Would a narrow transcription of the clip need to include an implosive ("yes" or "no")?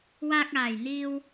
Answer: no